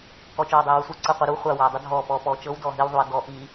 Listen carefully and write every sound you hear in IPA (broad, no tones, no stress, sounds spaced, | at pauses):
k ɔ t͡ʃ ɔː ɐ̯ dˤ iː w u sʷ əː ǀ əː qʷ əː ɾ u χʷ a w aː dˤ ə dʱ ɔː p ɔː p ɔː t͡ʃ ɤ w d ɔː ɦ i w ðˤ u ɐ̯ d ɔ ʔ i